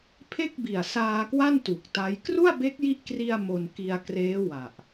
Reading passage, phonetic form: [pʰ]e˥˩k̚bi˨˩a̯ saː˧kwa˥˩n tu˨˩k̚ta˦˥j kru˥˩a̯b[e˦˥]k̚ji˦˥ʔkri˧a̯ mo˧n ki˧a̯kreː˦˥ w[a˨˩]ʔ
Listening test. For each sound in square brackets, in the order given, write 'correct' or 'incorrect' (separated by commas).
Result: correct, correct, correct